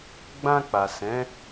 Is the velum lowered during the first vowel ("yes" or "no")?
yes